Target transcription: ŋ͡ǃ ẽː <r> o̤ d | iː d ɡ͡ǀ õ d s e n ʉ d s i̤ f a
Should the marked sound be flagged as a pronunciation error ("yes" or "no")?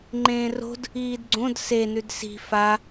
no